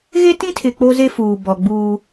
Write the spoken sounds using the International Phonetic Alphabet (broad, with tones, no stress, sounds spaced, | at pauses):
ɣ e˦ t ĩ˦ tʰ ɪ˨ k͡p o˦ z e˦ f uː˨ b ɔ˨ ɡ͡b uː˦